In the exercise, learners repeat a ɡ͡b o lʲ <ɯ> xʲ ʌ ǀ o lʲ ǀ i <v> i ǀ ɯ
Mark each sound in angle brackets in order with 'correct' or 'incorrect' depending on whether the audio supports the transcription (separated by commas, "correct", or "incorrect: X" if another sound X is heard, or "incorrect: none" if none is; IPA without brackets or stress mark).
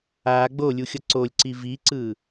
incorrect: u, correct